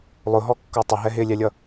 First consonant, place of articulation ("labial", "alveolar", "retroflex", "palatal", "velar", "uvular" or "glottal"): alveolar